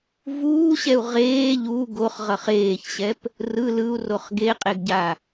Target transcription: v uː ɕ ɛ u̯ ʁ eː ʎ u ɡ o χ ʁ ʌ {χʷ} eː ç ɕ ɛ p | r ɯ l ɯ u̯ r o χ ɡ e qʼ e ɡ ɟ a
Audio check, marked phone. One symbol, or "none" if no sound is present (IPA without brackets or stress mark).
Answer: χ